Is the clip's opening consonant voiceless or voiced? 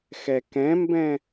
voiceless